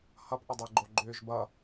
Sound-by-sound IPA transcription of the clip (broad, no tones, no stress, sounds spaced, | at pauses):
h ʌ p ʔ ə dˤ e ɡ͡ǃ o ɡ͡ǃ ʏː ʒ b ʌ